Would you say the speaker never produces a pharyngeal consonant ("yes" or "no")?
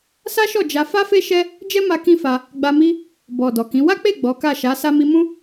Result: yes